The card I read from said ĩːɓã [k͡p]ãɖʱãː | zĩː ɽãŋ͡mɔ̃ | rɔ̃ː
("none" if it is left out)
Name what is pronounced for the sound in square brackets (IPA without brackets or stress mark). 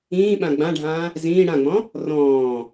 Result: ɡ͡b